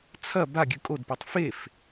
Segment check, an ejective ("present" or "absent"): present